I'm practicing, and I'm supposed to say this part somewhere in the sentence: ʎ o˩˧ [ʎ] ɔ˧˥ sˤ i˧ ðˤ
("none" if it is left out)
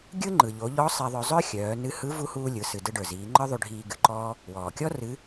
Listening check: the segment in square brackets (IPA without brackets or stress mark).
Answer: ʎ